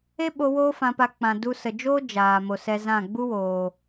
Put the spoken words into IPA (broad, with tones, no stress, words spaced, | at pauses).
e˦ɓo˧ woː˦fã˧pa˧ k͡pã˨du˧sə˨d͡ʒoː˦ d͡ʒaː˨mo˨sɛ˧zã˦˨ ɡ͡bu˦woː˨